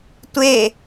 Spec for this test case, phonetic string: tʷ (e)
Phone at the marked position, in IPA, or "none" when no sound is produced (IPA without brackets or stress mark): e